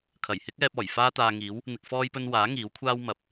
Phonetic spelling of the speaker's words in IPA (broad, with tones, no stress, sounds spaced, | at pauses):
kʰ ɐ˨˩ j h ɪ˥ k̚ ɛː˧ p̚ ɔː˨˩ j f aː˥ t̪ aː˧ ŋ iː˨˥ w | n̪ ɪ˨ k̚ f ɔː˧ j p ɵ˧ n w aː˨˥ ŋ iː˨˥ w kʷʰ aː˥ w m ɐ˨˥ p̚